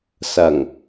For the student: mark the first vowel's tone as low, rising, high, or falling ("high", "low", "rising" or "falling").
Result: low